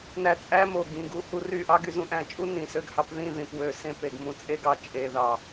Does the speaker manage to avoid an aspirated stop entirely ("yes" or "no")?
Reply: yes